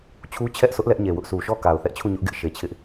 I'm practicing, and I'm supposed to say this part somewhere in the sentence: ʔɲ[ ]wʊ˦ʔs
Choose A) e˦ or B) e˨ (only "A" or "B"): B